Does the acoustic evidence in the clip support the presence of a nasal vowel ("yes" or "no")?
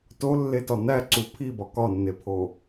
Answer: no